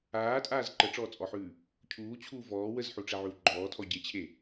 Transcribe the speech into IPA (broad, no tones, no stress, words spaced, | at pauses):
aːtʼaːz ǃəʈ͡ʂɔːt͡sʼɔħʉː | cʰuːt͡ɕʰuː vɔː wəzħuʈ͡ʂɛʕʉw ɡ͡ǃɔːtʰɔ ɟet͡ɕʰe